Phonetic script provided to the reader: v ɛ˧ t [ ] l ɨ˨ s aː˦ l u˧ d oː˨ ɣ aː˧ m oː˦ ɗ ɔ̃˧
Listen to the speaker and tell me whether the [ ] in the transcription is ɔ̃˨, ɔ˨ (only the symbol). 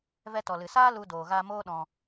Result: ɔ˨